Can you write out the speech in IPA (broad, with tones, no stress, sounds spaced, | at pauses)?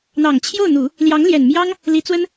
n̪ ɑ˨˩ ŋ t͡ɕʰ j o˥˩ ʊ̯ n̪ u˨˩˦ | l j ɑ˧˥ ŋ l j ɛ˨˩ n m j ɑ˥ ŋ | l i˧˥ t͡s w ə˥ n